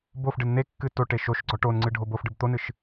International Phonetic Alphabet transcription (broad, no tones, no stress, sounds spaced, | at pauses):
b o f ɖ ɨ n n̪ e kː ɨ t o ʈ e ʃ o ʃ ɡ͡ǀ ɔ ʈ o n ŋ͡ǀ ɨ ɖʱ o b o f ɖ ɨ b t̪ o n ɨ ʃ